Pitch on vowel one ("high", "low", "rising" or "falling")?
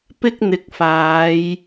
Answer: high